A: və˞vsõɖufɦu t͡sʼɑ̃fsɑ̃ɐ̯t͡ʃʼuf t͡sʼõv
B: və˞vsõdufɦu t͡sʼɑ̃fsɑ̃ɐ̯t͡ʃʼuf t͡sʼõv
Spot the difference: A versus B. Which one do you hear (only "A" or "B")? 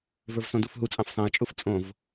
B